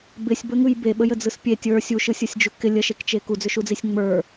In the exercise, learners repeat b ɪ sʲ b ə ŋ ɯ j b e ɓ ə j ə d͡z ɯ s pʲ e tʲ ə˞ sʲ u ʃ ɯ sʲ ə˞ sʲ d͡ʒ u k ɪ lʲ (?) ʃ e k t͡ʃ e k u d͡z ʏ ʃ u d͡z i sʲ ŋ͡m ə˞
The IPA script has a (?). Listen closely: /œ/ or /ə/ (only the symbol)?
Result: ə